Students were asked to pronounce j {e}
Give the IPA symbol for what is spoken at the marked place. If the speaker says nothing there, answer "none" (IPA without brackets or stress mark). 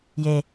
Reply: e